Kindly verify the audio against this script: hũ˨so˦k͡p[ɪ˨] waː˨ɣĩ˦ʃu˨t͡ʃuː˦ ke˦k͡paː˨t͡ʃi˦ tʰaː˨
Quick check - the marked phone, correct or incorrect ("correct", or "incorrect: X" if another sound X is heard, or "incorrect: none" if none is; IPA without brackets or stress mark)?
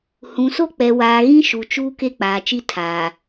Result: incorrect: ɛ˨